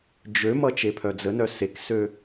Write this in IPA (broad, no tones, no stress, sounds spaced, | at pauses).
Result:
d͡ʒ ø m ʌ t͡ʃ e pʰ œ d͡z ə n œ s e k s ø